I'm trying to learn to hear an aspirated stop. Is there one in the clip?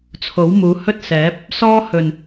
yes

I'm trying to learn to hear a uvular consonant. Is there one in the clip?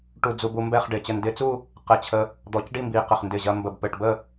yes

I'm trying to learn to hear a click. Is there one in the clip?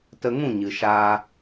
no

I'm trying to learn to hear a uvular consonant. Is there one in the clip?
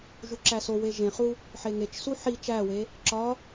yes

